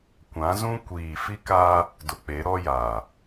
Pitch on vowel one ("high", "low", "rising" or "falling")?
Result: rising